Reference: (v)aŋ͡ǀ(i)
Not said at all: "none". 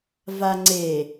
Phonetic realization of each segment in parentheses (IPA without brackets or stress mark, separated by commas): v, e